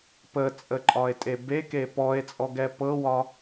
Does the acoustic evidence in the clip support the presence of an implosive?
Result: no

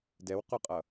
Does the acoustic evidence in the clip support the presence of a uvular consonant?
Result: yes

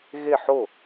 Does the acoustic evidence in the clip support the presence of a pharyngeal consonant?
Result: yes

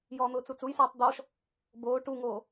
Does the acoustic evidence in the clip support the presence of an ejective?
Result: no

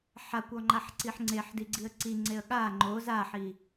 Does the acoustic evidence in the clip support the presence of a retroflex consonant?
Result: no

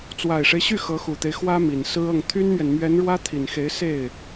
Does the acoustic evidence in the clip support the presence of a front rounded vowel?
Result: yes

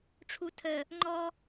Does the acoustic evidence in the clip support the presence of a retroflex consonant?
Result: yes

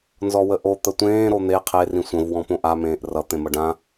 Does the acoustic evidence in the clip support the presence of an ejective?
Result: no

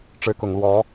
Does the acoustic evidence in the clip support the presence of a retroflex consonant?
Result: yes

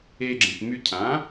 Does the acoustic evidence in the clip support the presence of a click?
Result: yes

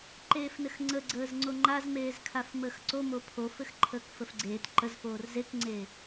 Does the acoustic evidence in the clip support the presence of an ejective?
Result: no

